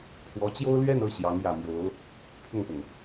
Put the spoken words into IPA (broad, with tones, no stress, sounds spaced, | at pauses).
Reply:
kʰ w ɔ˧˥ t͡ɕ j o˥ ʊ̯ l ɥ ɛ˥˧ n ɤ˥˩ ɕ j ɑ˧˥ ŋ j ä˨˩ m j o˧˥ ʊ̯ | pʰ ʊ˥˩ ŋ p ʊ˩ ŋ